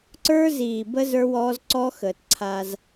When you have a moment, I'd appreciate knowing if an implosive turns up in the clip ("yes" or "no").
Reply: no